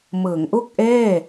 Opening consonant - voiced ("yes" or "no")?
yes